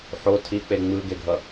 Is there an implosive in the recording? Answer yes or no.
no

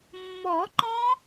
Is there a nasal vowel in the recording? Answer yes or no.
yes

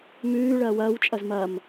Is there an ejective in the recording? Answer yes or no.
yes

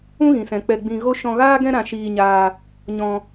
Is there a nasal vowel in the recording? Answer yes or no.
yes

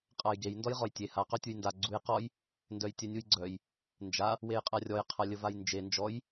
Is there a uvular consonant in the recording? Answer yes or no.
yes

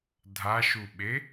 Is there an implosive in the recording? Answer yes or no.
yes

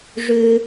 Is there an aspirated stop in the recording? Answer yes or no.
no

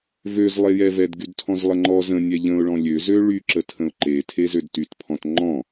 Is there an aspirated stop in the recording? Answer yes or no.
yes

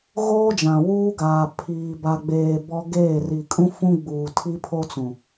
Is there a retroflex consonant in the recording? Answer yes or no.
no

